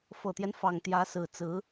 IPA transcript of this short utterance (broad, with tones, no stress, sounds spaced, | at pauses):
f ɤ˨˩ t̪ j ɛ˦ n f ɑ˨˩ ŋ t̪ j ä˧˥ s ɹ̩˨˩ t͡s ɹ̩˧˥